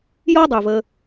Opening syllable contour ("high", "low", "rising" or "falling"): high